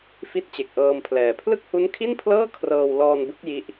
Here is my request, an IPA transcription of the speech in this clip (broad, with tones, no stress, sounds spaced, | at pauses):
f i˥˩ t̚ t͡ɕ e˨˩ k̚ ʔ ɤː˧ m pʰ l ɛː˨˩ pʰ l ɯ˥˩ k̚ h u˦˥ n kʰ i˥˩ n pʰ l ɤː˥˩ kʰ r ɤː˧ w l ɔː˧ n b ɯ˦˥ k̚ j i˦˥ ʔ